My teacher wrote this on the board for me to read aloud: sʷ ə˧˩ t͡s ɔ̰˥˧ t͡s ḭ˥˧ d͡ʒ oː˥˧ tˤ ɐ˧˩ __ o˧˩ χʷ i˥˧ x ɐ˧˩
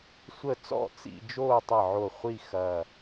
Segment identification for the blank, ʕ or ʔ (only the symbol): ʕ